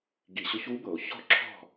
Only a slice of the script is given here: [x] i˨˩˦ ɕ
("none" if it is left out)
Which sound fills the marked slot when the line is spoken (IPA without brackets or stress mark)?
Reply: ɡ